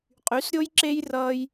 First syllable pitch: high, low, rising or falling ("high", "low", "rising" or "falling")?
rising